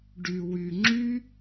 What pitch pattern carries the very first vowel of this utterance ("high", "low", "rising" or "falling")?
low